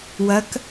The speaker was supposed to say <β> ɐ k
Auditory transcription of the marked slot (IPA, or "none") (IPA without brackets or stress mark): w